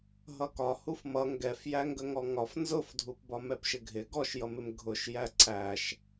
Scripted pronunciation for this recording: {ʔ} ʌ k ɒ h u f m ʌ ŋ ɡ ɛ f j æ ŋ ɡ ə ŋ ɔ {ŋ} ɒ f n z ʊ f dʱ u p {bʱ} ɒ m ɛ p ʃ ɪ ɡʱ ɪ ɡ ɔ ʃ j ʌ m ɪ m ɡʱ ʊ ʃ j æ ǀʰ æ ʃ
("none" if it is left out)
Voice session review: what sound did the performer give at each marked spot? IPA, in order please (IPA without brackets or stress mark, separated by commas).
ɦ, ŋ, b